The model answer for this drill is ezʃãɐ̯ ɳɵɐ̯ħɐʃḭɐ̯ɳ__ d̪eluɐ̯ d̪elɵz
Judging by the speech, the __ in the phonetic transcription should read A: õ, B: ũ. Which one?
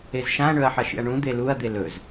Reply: B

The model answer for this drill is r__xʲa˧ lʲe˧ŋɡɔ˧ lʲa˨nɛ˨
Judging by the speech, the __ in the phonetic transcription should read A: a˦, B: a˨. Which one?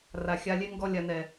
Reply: B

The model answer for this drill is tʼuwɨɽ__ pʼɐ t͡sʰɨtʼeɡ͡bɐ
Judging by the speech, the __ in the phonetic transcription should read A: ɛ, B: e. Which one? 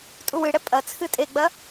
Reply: A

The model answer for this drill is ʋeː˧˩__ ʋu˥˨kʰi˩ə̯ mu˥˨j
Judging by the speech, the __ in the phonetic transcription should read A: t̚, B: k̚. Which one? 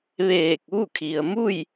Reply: B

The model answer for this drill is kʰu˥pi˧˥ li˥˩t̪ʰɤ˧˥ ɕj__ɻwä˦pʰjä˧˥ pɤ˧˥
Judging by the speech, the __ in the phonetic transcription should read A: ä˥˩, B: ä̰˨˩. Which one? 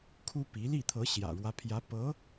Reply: B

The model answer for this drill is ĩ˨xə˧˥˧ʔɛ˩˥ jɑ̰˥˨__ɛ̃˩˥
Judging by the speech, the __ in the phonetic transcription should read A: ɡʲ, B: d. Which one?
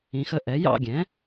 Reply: A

